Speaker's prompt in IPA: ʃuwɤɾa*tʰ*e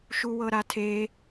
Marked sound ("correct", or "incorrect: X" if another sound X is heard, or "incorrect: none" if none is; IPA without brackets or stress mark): correct